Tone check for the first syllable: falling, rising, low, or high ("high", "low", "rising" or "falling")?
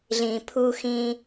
low